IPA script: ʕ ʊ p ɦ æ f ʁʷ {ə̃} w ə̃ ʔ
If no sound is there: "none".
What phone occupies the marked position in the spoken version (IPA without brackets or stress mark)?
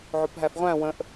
æ̃